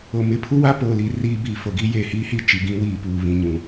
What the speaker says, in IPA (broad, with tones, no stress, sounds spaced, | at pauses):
o˨ m ɪ˦ pʰ u˦ w a˦ p oː˨ l i˨ r iː˦ b iː˨ f o˨ ɡ i˦ j eː˨ h iː˦ h i˦˨ t͡ʃ i˨ ɡ ĩ˦ w iː˨ p uː˨ β ĩ˨ ɲ ũ˨